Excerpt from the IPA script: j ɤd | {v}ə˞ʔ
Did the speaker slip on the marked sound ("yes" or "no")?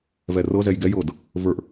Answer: no